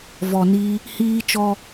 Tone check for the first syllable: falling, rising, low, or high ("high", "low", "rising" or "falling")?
low